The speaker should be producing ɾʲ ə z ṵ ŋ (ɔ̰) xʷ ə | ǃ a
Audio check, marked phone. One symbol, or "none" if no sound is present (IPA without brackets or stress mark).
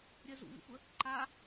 ə̰